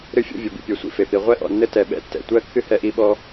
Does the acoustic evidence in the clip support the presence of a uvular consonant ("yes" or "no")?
yes